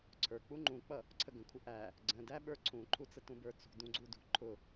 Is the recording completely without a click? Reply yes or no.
no